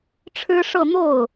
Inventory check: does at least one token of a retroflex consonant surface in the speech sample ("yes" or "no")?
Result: yes